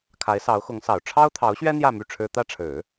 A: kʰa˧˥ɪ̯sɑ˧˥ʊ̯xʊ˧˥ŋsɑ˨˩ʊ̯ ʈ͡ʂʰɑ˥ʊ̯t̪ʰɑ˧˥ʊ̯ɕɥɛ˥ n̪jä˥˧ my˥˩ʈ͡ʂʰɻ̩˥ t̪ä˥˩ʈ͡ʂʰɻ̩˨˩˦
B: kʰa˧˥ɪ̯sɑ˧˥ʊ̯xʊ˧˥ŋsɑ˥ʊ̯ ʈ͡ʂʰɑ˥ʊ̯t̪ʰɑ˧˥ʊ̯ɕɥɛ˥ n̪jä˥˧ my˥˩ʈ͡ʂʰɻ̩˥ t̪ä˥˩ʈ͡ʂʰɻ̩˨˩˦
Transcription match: A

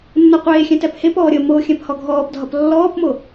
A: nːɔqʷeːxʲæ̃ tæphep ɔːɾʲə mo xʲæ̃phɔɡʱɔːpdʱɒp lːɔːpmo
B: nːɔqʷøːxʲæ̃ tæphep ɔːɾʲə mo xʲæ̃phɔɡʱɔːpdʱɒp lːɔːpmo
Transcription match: A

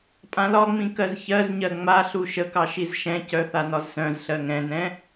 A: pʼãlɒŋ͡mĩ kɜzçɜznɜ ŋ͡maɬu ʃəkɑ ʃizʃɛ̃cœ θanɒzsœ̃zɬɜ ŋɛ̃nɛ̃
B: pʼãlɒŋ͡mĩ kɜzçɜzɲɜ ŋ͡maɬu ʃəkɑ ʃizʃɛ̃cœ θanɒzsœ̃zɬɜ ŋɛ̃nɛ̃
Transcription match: B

